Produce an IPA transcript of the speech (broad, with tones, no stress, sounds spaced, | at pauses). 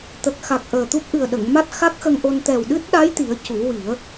t̪ ə˨˩ k̚ x a˨˩ k̚ ʔ əː˨˩ t̪ u˦˥ p̚ ʔ ɨ˨˩ ə̯ ɗ ə˨˩˨ ŋ m a˦˥ t̚ x a˦˥ k̚ x ə˧ ŋ ʔ o˧ n t̪ ɛ˨˩ w ɗ ɨ˦˥ t̚ ɗ a˧˥ j t̪ i˨˩˦ ə̯ c u˨˩˦ w i˨˩˦ ə̯